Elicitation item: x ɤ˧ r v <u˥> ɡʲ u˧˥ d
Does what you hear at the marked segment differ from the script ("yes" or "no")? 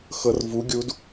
yes